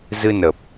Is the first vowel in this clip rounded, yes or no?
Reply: no